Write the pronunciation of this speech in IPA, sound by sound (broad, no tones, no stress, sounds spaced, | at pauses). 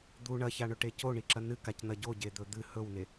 d̪ u ɳ ɐ ç a ɳ ɵ ʈ e c o ɳ i ǁ ɐ n ɨ k a c n̪ ɐ ɟ o ɟ e d̪ ɵ d̪ ɨ h ɵ w n e